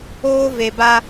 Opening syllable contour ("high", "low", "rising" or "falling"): high